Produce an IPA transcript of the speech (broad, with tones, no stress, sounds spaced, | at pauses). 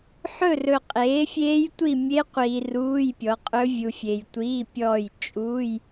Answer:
ħ ɵ˥˨ r ɵ˨ qʼ eː˩˥ fʲ eː˦˥ j tʷ i˥˨ mʲ e˦˥ qʷ iː˨ r uː˧˥˧ j pʲ ɔ˩˥ qʼ ɵ˦˥ vʲ u˨ fʲ e˨ j tʷ iː˧˥˧ pʲ ɔː˥˨ j t͡ʃʼ uː˧˥˧ j